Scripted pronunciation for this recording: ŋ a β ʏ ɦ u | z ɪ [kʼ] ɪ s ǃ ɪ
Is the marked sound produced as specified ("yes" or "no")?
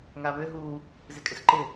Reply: yes